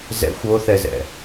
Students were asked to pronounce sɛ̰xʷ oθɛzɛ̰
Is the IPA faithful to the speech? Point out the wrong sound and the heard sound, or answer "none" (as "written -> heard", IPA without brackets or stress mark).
s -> z